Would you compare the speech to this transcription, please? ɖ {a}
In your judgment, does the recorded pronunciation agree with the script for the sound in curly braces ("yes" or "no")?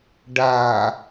yes